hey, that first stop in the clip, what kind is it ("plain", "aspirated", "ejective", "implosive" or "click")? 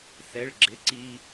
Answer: click